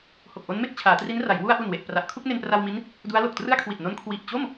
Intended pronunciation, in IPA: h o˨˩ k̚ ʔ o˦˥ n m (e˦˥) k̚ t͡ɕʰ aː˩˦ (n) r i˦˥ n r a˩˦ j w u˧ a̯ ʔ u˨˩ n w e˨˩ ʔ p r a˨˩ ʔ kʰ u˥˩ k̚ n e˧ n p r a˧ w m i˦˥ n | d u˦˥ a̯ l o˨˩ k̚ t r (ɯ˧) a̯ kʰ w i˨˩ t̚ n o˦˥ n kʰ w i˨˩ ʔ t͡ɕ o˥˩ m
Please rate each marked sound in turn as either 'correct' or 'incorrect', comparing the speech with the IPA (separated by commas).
incorrect, incorrect, incorrect